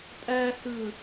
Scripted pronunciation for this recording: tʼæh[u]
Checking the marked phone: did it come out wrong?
yes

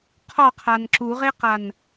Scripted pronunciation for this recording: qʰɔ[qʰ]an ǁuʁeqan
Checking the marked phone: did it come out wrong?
no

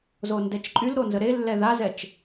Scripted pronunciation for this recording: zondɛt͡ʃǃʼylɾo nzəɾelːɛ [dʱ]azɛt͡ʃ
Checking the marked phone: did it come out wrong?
yes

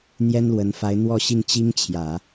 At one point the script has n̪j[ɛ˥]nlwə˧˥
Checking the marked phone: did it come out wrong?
no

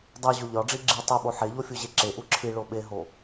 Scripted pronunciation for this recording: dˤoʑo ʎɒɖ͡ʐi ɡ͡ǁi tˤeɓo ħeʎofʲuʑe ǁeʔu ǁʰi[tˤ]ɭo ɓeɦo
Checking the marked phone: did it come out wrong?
yes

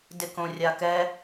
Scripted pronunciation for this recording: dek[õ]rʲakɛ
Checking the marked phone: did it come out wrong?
no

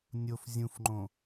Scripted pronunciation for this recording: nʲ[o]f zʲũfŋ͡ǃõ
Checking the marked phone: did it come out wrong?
no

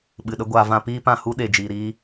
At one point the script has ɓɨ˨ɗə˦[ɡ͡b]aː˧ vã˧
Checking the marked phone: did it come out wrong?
yes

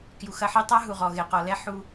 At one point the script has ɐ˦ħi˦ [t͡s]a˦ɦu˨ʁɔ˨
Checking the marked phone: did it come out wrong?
yes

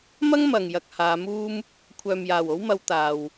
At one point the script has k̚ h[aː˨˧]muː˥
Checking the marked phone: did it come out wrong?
no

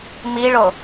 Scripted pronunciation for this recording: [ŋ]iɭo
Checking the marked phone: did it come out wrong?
yes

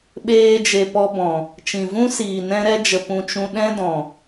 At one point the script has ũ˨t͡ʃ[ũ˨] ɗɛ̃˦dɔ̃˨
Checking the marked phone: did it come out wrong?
no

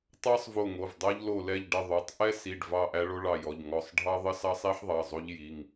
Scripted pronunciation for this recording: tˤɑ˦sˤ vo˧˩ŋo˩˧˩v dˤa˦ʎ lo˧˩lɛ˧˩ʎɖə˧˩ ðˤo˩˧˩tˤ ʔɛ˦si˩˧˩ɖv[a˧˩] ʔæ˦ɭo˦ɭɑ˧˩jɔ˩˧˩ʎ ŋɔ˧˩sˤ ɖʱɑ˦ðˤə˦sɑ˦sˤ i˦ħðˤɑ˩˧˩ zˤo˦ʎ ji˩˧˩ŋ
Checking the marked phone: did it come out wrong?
yes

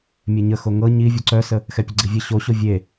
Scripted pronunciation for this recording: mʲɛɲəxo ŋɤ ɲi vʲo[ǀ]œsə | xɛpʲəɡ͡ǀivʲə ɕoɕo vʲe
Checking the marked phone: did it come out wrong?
no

